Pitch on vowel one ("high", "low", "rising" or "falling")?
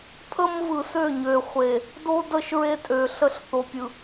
high